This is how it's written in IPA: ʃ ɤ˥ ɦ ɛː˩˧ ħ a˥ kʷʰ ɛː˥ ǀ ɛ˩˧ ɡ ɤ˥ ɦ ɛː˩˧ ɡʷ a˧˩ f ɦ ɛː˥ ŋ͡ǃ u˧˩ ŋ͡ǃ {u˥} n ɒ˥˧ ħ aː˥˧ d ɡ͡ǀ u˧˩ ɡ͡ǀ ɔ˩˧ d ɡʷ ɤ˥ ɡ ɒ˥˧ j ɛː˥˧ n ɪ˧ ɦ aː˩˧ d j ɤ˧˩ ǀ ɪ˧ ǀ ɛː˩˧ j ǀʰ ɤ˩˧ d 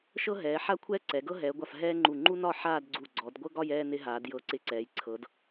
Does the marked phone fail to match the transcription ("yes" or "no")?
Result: no